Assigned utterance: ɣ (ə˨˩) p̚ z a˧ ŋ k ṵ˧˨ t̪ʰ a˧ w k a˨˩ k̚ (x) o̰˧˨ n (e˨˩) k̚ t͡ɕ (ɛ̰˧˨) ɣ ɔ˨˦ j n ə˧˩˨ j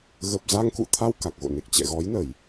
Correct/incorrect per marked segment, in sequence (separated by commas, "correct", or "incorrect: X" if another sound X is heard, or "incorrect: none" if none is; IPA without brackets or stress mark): correct, incorrect: ɣ, correct, correct